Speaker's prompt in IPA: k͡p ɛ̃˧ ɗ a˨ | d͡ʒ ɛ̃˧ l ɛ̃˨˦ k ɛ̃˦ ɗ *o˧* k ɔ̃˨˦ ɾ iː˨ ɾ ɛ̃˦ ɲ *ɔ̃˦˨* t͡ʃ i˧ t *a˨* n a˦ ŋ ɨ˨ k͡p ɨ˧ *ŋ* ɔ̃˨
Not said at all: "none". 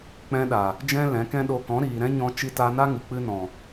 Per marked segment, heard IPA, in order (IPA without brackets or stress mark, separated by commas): o˧, ɔ̃˧, a˧, n